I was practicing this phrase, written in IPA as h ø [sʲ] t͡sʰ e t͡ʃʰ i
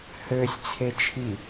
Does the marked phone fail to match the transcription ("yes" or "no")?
no